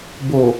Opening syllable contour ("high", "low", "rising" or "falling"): low